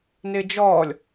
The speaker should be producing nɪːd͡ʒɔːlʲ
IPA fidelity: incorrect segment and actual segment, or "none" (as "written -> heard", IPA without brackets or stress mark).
none